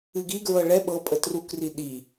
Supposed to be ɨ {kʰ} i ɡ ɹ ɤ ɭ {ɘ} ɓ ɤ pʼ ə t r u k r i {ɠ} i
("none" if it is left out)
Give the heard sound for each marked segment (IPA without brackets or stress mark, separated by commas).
ɡ, ɛ, ɗ